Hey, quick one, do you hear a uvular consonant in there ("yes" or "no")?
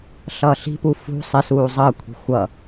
no